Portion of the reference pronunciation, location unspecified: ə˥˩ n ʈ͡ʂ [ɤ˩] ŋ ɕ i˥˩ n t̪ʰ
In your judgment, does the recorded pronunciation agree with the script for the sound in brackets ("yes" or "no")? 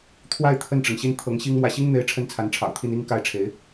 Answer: yes